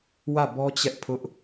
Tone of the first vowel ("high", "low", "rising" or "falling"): falling